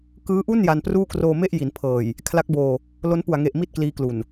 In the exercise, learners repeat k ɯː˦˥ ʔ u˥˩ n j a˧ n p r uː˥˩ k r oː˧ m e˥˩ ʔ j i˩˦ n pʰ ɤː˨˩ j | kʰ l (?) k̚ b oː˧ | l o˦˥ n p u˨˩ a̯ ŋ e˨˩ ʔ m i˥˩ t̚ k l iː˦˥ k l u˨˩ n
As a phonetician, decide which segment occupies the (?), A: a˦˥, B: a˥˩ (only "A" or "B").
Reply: A